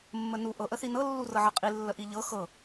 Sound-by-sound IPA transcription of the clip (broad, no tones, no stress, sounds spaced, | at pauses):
mː ə n u ʔ ɤ ʔ ə θ i n ɤ lː u r ɤ ʕ ɤ qʼ i lː ə ʔ i ʎ ɤ x ɤ